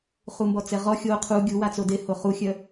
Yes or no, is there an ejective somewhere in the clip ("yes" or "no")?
no